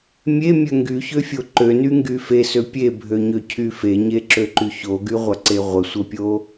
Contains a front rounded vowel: yes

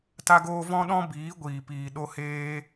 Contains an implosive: yes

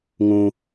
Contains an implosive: no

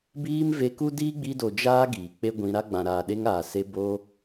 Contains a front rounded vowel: no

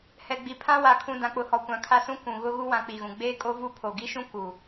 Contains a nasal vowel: yes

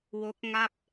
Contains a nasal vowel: no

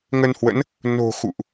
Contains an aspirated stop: no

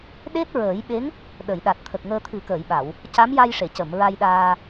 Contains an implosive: yes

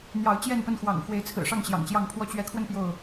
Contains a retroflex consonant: yes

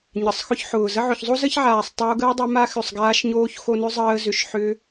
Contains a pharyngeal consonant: yes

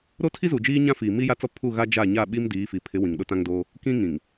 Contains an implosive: yes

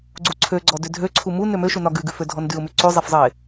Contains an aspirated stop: yes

